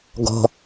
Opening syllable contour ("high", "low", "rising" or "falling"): low